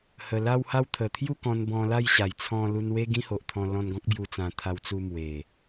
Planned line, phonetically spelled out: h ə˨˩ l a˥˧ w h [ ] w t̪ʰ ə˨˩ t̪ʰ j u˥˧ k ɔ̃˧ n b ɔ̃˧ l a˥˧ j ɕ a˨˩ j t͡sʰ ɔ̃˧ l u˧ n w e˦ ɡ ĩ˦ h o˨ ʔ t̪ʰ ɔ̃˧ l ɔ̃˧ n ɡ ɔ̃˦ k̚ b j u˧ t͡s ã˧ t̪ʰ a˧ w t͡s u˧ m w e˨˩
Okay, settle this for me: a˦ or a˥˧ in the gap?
a˥˧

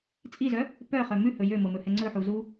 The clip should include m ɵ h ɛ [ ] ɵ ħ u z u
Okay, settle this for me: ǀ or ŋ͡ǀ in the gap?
ŋ͡ǀ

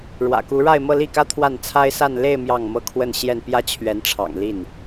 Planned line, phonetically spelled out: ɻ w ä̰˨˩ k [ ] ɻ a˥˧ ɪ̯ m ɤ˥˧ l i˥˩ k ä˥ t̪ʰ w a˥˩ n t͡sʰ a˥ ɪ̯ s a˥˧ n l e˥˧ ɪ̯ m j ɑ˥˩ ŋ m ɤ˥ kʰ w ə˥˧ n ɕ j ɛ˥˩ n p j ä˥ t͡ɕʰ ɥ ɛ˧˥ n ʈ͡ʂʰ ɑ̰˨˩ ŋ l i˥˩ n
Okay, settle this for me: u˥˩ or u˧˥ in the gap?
u˧˥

